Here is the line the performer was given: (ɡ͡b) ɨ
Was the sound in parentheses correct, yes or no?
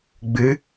yes